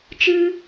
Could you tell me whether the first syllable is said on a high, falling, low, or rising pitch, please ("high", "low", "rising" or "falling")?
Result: high